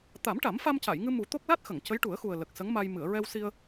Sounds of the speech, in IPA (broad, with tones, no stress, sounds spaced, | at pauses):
t̪ a˨˩˦ m ʈ a˨˩˦ m f a˧ m c a˨˩˨ j ŋ ɨ˧ m u˨˩˦ t̪ o˦˥ k̚ l a˦˥ t̚ x ə˨˩˨ ŋ c ə˧˥ j ʈ u˨˩˦ ə̯ x u˨˩ ə̯ l ə˨˩ k̚ s ə˧˥ ŋ m a˧ j m ɨ˨˩˨ ə̯ ɹ ɛ˧ w s i˧ ə̯